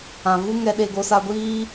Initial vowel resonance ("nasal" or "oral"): nasal